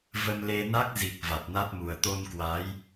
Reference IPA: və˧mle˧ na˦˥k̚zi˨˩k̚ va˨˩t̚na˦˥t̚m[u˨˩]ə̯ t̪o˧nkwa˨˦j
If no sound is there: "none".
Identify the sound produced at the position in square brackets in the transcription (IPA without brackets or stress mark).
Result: u˨˩